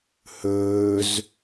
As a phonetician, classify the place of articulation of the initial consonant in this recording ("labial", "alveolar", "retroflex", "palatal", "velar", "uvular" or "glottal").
glottal